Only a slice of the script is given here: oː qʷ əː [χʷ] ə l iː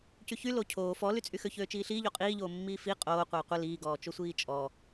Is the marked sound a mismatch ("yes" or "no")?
yes